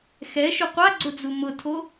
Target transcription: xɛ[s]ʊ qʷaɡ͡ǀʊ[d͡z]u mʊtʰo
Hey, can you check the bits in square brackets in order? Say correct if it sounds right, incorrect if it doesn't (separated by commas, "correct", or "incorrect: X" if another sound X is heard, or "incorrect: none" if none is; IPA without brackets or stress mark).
incorrect: ʃ, correct